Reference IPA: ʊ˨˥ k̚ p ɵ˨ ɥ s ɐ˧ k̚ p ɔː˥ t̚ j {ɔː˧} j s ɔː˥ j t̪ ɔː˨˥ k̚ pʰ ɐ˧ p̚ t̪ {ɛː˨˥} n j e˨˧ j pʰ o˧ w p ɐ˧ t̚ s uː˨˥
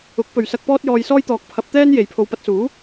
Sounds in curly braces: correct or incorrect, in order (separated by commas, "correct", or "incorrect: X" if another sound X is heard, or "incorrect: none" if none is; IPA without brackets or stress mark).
correct, incorrect: ɛː˥